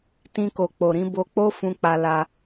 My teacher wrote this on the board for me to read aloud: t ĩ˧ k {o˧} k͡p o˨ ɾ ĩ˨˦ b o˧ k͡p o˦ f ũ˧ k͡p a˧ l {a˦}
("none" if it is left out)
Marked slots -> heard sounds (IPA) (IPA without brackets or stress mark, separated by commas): o˨, a˦